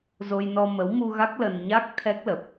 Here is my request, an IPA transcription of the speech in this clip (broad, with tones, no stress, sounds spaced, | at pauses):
z o˧ j n ɔ˧ m ə˨˦ w m u˧ ɣ a˦˥ k̚ l ə˧ n ɲ a˦˥ k̚ t̪ʰ ɛ˦˥ k̚ l ə˨˩ p̚